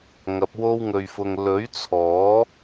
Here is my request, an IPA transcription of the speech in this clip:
ŋ ɐ˨˥ p̚ w o˥ w ŋ ɵ˧ ɥ f ʊ˧ ŋ l ɵ˨˥ ɥ t͡sʰ ɔː˨˥

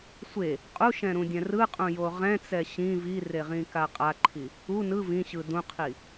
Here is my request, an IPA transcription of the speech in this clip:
sʷ e | qʼ u ʃ ɛ̃ ɾ ũ dʲ ɛ̃ r ɯ qʼ ũ j o ʁ ɛ̃ t͡s ɛ ɕ ĩ v i r e ʁ ĩ k a qʼ a ǃʰ i | u n ɯ v ĩ ɕ ɯ d ũ qʰ i

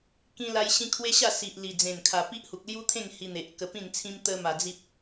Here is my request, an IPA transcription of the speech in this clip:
k ĩ˦ l a˦ j ɕ ĩ˦ kʰ w e˦ ɕ a˥˧ s i˨ ʔ l i˨˩ d͡z ẽ˨˩ n kʰ a˨˩ p i˦ ʔ h u˨ k̚ l j u˦ t̪ʰ ẽ˥˧ ŋ h i˧ n̪ e˨ ʔ k ə˧ p ĩ˥˧ n t͡sʰ ĩ˦ m t̪ ə˧ m a˨˩ d͡z i˦ p̚

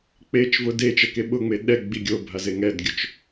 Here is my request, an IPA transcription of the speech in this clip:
k͡p e t͡ʃ v ʊ d e t͡ʃ ɛ k e ɓ ʊ ŋ͡m e ɗ ɛ ɡ͡b i ɡʲ o bʱ a z e ŋ ɛ d ɡʲ ʊ t͡ʃ

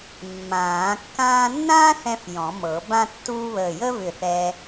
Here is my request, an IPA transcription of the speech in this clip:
mː ãː˨˩˦ kː ãː˥ nː ãː˥ θ ɛ̃˧ f j ɔ̃˨˩˦ m ɤ˨˩˦ b ã˥ tː uː˥ β əː˧˩ j əː˥ β ʏ˧˩ θ ɛ˧

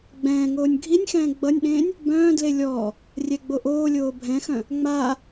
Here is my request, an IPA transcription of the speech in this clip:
ɡ͡b ɛ̃ː ŋ oː nʲ ɡʱ i nʲ x ɛ̃ː ɡ͡b ʌ nʲ ɗ ẽː nʲ | b œ̃ː d l e lʲ ɔː | rʲ ɛ ɡ͡b o ʔ oː lʲ oː bʱ ɛ̃ x œ̃ | ŋ͡m aː

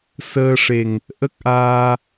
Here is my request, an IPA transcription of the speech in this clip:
s əː˧ ʂ e˨˩ ŋ | ʔ ə˦˥ k̚ ʔ aː˧

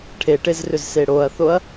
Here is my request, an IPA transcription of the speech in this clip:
ʈʰ e ʈ e z r ʏ z s e ɽ o ɐ̯ θ o ɐ̯

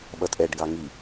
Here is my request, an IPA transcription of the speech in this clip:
ɓ ʌ tʼ ɛ ɖ ɡ ɑ ŋ i

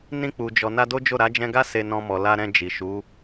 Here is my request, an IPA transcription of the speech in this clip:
n ĩ˧ k͡p u˨ d͡ʒ ɔ˨ n a˧ d o˦ d͡ʒ o˦˨ ɾ a˨˦ d͡ʒ ɛ̃˧ ɡ a˦ s e˧ n ɔ̃˧ m ɔ˨ l a˧ ɾ ɛ̃˧ d͡ʒ i˨ ʃ u˨˦

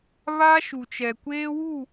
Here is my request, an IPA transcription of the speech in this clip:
β a˦ ʃ u˨ t͡ʃ ɛ˨ kʷ eː˦ w u˦˨

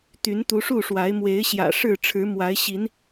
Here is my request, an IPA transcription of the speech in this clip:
t̪ y˨˦ n t̪ u˨˦ ʂ u˥˨ ʂ w a˨˦ ɪ̯ m w e˨˦ ɪ̯ ɕ j ä̰˨˩ ʂ ɻ̩˥˨ ʈ͡ʂʰ ɻ̩˨˦ m w a˨˦ ɪ̯ ɕ i˨˦ n

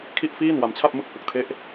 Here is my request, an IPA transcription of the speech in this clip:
kʰ i˥˩ ʔ f iː˥˩ n w a˧ m t͡ɕʰ a˥˩ p̚ m ɯ˥˩ k̚ h ɯ˨˩ k̚ tʰ e˦˥ ʔ

